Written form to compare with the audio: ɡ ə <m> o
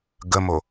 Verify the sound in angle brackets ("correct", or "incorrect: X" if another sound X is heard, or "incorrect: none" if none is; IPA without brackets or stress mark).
correct